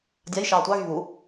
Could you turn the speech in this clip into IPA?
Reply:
dʲ a j ʃ ɑː tʷ ɑ ɣ y β u

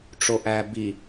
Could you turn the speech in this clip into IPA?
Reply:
ʈ͡ʂ o ʔ æ b i

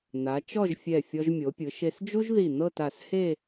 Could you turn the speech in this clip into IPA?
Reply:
n̪ a˩˧ t͡ʃ ɔ˥˧ ʒ fʲ ɛ˧˩ fʲ ɔ˧ ʒ mʲ o˩˧ pʲ ɯ˩˧ ʃ e˧ s d͡ʒ u˥ ʒ ð i˧˩ n̪ ɤ˥˧ t a˧˩ s h e˥˧

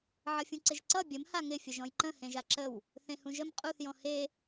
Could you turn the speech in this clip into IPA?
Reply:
ʕ ʌ fʲ ũ ǀ ɪ ʒ ǀ ʌ bʲ ə m h a ŋ ɪ fʲ ə ʒ ɔ̃ j ǃ ə̃ h ẽ ʒ a ǁ ə w | θ ẽ h ũ ʒ ə m qʼ u θ j ɔ̃ h e

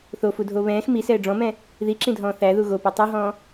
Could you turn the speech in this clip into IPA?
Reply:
θ o f u dʱ o β ɛ̃ː x m i s ɛː ɖ͡ʐ ɔ̃ m ɛ̃ | ð i ǁ ĩ dʱ ɔ̃ː θ æ ð u ɣ o p u tˤ u ɦ ɔ̃ː

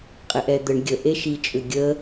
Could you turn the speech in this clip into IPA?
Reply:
qʼ e ʔ ɛ d̪ ə ɳ ɡʲ ə ʔ e ʃ i t͡ʃʼ ʏ ɡʲ ə

